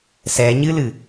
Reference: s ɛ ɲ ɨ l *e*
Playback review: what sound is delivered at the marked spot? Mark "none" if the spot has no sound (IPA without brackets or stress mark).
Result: ɨ